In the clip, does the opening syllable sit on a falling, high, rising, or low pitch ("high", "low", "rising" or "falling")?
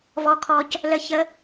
high